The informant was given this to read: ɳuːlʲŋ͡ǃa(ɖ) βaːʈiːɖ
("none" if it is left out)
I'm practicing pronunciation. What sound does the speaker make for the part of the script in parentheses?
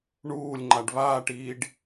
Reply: ɖ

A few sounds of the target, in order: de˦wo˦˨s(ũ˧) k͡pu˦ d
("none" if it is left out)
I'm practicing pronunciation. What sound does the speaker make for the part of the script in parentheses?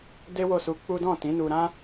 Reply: u˧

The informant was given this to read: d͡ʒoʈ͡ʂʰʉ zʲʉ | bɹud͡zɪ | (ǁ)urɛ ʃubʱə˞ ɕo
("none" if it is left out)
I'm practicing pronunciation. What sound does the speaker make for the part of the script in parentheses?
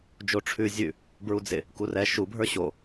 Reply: k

